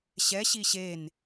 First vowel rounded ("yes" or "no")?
no